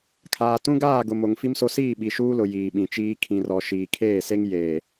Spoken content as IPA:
kʰ aː˨ t ũ˦ ɡ aː˦˨ ɡ ʊ˨ m o˨ ŋ f i˦ m s o˦ s iː˦˨ ɓ i˨ ʃ uː˦ l ʊ˨ j iː˨ ɓ ĩ˨ t͡ʃ iː˦ kʰ ĩ˨ r ɔ˨ ʃ iː˨ kʰ eː˦˨ s e˦ ŋ j eː˨

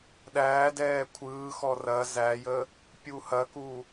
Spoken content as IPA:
ɗ æː d ɛː kʷʰ ɯː x ɔ r ɐ z æ j ə | pʲ u h ɐ k u

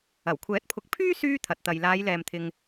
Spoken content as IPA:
ɐ˨˩ w kʷʰ ɛː˨˥ t̚ pʰ ʊ˨˥ k̚ pʰ yː˥ s yː˥ t̪ʰ ɐ˨ t̚ t̪ ɐ˨ j l aː˨˧ j l ɛː˨ m t̪ʰ ɪ˨ ŋ

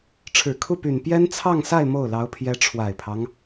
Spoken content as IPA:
ʈ͡ʂʰ ɻ̩˨˩ kʰ u˥˩ p y˨˩ n p j ɛ˥ n t͡sʰ ɑ˥˧ ŋ s a˥˧ ɪ̯ m o˥˩ ʊ̯ l ɑ˧˥ ʊ̯ pʰ j ɛ˧˥ ʈ͡ʂʰ w a˨˩ ɪ̯ pʰ ɑ˦ ŋ

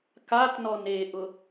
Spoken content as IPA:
k a t n ɔ n e ʔ ʊ

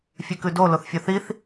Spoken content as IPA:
fʲ ʉ k ʉ d o l o θ fʲ ɔ θ i θ

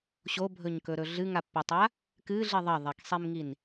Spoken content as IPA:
ɕ o bʱ ɵ ɲ k ɵ ɾ ɵ ɮ ɨ ŋ a pː i tˤ a | k ɨ ɮ i ðˤ ɐ ðˤ e k sˤ i m ŋ i n

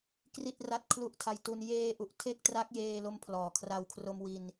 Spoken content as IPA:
k r i˥˩ t̚ r a˦˥ t̚ kʰ l u˦˥ ʔ tʰ a˧ j t u˧ n j eː˧ ʔ u˨˩ ʔ tʰ e˥˩ k̚ t r a˦˥ k̚ j eː˧ l o˦˥ m pʰ l ɔː˨˩ kʰ r a˧ w kʰ r o˧ m w i˧ n

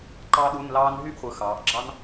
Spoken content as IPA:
ǃ ɑ˥ ɗ u˧˥˧ n l ɑː˥ n ɦ y˥˨ ʔ χʷ ɯ˩˧ x ɑː˩˧ ʔ ɡ͡ǁ ɑ˥ n

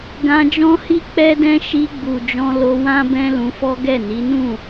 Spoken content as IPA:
ɡ ã˧ d͡ʒ ɔ̃˦ h i˦ k͡p ɛ˦ d ɛ̃˦ ʃ i˧ ɡ͡b u˨ d͡ʒ ɔ̃˧ l o˧ w ã˦ b ɛ̃˦ l ũ˧ f ɔ˦ ɡ ɛ˦˨ n i˨˦ n ũ˦˨

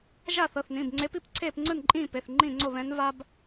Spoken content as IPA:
ʒ a˥˨ θ ɤ˩˧˩ θ n ĩ˩˧˩ b ŋ͡ǀ e˧˥ p i˥˨ p ǀʰ eː˥˨ p ŋ͡ǀ ɯ˥˨ n ǃʼ ĩː˥˨ p e˩˧˩ θ ŋ͡ǃ ĩː˥˨ ŋ͡ǀ o˥˨ β ɛ̃˧˥ n v a˥ b

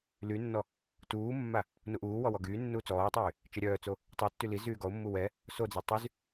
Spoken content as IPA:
l y nː ɔ | t uː mː a | n u ʔ uː w ɔ w ɔ ɡ yː nː uː t͡s ɔː tˤ yː | t͡ʃ ɛ ɾʲ œː t͡s o | tˤ y tː y l i z yː ɡ ɔ ʊ̯ mː u w ɛ | s o d͡z ɛ tˤ y z

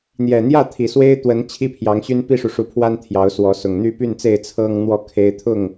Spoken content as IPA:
n̪ j ɛ˨˩ n̪ j ä˥˨ t̪ʰ i˨˩ s w e˦ ɪ̯ t̪ w ə˨˦ n t͡ɕʰ i˦ pʰ j ɑ˨˦ ŋ ɕ y˦ n p i˦ ʂ u˨ ʂ u˨˦ pʰ w a˦ n t̪ʰ j ɑ˨˦ ʊ̯ s w ɔ˨˦ s ʊ˨˩ ŋ n̪ y˥˨ p y˥˨ n t͡s e˥˨ ɪ̯ t͡sʰ ɤ˦ ŋ n̪ w ɔ˥˨ kʰ e˦ ɪ̯ t̪ʰ ʊ˥˨ ŋ

